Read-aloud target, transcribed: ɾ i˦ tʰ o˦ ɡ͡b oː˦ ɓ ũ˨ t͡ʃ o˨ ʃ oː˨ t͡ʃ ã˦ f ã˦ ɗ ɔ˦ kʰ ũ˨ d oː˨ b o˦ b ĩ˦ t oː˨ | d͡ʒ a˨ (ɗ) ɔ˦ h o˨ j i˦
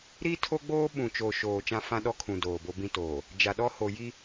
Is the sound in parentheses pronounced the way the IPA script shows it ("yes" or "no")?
yes